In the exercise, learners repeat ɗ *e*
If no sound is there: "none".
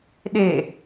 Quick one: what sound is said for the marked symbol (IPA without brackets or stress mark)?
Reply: e